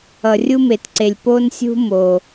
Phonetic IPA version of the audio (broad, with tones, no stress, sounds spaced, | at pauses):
ʌ˨ rʲ u˦ m e˨ t ǀ e˨ lʲ p o˦ n sʲ ṳ˦ m o˨